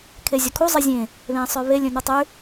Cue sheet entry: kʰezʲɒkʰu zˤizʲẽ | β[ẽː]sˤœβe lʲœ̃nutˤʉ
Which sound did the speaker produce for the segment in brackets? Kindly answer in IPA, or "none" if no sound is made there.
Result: ẽː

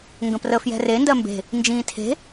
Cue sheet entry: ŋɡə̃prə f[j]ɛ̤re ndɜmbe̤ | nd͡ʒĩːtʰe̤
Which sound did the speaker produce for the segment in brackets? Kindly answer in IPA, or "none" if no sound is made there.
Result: j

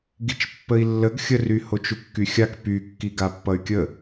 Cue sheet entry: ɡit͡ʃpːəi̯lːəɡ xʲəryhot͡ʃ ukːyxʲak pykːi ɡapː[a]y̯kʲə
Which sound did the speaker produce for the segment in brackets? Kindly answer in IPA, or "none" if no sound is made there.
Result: ʌ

